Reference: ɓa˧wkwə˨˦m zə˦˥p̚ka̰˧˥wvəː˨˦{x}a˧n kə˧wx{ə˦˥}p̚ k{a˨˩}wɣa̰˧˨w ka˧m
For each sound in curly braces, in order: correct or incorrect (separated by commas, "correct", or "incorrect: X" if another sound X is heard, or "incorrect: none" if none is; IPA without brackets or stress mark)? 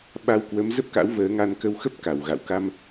incorrect: ŋ, correct, correct